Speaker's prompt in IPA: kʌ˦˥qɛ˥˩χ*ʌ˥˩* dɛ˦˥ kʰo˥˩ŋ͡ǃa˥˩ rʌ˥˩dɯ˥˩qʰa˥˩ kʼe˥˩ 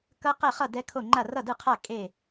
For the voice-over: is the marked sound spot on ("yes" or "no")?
yes